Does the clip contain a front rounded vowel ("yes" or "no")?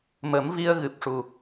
no